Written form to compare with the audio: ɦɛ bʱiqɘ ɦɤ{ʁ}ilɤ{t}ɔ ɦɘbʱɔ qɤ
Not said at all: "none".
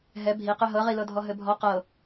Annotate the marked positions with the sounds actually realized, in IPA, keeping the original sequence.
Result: ʁ, dʱ

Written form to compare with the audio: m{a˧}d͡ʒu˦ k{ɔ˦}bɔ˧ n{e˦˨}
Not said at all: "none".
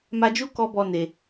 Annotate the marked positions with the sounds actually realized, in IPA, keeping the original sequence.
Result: a˧, ɔ˦, e˨

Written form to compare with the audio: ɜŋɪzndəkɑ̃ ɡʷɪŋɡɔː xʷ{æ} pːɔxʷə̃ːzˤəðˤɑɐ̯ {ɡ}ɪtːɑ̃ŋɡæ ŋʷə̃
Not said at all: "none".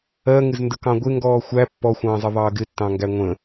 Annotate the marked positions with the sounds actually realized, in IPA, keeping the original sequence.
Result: æ, ɡ

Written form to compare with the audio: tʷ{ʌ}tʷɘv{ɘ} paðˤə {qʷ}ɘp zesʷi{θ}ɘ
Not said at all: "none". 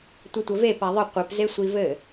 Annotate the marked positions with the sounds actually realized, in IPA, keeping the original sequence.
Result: ʌ, e, qʷ, v

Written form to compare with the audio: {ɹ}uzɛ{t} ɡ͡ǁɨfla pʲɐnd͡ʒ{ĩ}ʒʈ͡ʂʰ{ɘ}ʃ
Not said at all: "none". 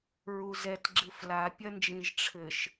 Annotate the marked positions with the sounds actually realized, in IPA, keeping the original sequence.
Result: ɹ, t, ĩ, ɘ

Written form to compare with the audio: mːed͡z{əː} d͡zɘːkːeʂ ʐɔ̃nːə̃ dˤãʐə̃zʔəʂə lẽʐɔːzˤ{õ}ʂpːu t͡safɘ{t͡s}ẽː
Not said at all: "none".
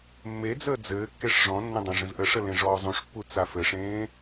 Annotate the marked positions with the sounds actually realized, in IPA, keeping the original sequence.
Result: əː, ũ, ʂ

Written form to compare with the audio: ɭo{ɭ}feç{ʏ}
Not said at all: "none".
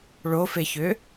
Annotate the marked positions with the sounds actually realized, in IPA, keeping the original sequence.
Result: none, ʏ

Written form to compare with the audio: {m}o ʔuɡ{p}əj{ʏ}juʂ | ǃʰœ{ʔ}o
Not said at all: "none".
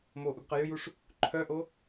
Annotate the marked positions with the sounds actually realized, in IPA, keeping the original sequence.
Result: m, q, ʏ, ʔ

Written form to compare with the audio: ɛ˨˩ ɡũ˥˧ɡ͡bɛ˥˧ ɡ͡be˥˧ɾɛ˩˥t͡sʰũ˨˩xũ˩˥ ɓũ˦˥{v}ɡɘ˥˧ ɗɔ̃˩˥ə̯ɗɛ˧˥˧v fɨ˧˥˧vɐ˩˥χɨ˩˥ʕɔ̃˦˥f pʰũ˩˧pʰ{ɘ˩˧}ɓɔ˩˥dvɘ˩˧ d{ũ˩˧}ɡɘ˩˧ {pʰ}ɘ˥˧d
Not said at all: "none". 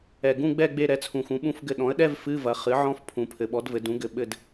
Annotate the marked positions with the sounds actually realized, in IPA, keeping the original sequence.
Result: f, ɘ˩˧, ũ˩˥, ɓ

